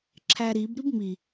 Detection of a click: present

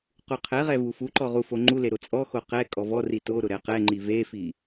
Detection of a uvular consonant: present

